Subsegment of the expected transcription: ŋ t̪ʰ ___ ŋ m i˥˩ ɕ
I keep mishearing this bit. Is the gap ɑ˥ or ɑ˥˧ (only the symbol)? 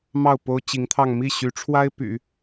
ɑ˥˧